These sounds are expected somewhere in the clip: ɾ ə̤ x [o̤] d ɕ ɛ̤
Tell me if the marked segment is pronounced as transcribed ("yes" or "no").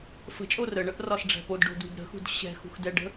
no